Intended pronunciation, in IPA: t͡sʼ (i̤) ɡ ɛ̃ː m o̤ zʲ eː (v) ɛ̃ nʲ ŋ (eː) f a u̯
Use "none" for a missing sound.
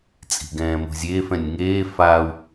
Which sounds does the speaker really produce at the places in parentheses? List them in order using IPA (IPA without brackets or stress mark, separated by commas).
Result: i̤, f, eː